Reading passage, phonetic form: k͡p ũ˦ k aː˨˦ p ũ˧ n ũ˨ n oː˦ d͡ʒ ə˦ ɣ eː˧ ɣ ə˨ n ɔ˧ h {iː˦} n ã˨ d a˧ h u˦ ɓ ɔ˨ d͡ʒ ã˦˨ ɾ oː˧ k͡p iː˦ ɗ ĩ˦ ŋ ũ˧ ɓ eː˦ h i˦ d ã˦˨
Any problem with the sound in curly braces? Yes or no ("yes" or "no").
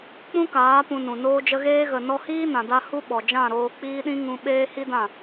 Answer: no